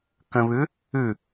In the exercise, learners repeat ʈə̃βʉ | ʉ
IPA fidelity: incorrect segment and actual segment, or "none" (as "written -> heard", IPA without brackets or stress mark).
ʈ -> k